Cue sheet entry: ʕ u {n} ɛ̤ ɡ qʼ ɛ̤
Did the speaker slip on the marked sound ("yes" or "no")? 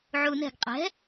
no